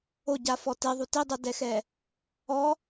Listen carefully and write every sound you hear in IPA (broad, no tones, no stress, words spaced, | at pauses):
oɟafɔ teðˤu tidˤodɛxɛ | ɔ